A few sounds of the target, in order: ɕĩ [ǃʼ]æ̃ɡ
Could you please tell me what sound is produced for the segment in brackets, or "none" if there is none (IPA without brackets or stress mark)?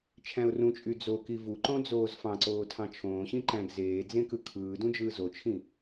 ǃ